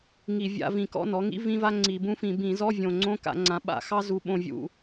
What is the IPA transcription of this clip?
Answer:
ŋ i˧˩˧ vʲ a̰˧˥˧ v ĩ˨˩ k ɔ̰˧˥˧ n ɔ˩˥ ŋ ḭ˥ v ĩ˥ v a˥ ŋ͡ǀ i˧˩˧ b ũ˥ f ĩ˧˩˧ b ĩ˧˩˧ z ɔ˧˥˧ vʲ õ˨˩ ŋ͡ǀ õ˧˥˧ k a̰˧˩˧ ŋ͡ǀ ã˩˥ ɓ a̰˨˩ x ɑ˥ z u˨˩ ɓ õ˨˩ vʲ ṵ˨˩

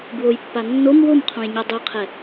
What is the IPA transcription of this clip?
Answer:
b w o j pː a nː o m w o m qʰ õ j ɲ ɔ dˤ ɛ qʰ ɛ

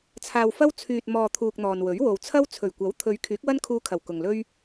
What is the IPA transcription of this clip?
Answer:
t͡sʰ aː˧ w f ɐ˥ w t͡sʰ yː˨ t̚ m ɔː˨ t̪ʰ uː˧ k̚ n̪ ɔː˨ n w ɵ˨˥ ɥ w o˨ w t͡sʰ ɐ˥ w t͡sʰ ɵ˨˩ ɥ kʷ ɐ˨˥ w t̪ʰ ɵ˨˧ ɥ kʰ yː˨˥ k̚ w ɐ˥ n kʰ uː˧ kʰ ɐ˨˩ w k ʊ˨ ŋ l ɵ˥ ɥ

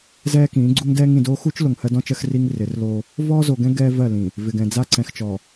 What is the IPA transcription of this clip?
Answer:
z ɛː˦ k ĩː˨˦ ɡ͡ǀ u˦ ŋ d ɛː˦ ŋ ĩ˨ d oː˦ x u˦ t͡ʃ l o˨ ŋ h ɜ˦ d ɔ̃˦ t͡ʃ ɜ˦ x r i˦ ŋ r ɪ˨˦ r l oː˦ | v ɔː˦ z o˨ ɡ ɛ̃˦ ɡ ɛː˦ v ɜ˦˨ l ĩː˨ | v ɪ˨ ɡ ɛ̃˨ d͡z a˦ ǀ ɛ̃˨ x t͡ʃ ɔː˨

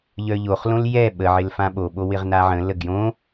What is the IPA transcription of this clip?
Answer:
ʎ œ ʎ o χ l õ l j ɛ ɓ ə ʕ ɪ l f ã ɓ o ɓ o w ɪ ʁ n a ʕ ə̃ l ə ɡ j õ

